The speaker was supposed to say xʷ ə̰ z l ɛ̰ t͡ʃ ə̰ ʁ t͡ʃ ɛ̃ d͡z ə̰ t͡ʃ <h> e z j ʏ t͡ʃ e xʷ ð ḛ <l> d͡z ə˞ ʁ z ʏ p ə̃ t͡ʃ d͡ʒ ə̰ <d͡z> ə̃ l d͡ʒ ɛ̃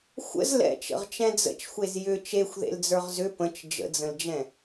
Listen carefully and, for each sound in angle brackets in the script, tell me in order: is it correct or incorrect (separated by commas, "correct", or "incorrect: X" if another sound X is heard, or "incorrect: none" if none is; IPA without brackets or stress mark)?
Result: incorrect: xʷ, correct, correct